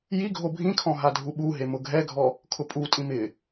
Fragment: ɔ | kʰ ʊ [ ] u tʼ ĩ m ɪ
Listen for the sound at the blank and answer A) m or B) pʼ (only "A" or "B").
B